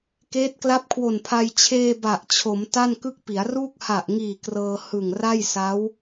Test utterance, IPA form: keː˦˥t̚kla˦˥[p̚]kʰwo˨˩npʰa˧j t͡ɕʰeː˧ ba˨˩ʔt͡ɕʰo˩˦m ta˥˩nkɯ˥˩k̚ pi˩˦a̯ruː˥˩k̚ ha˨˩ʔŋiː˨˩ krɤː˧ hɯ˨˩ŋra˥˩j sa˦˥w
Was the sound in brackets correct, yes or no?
yes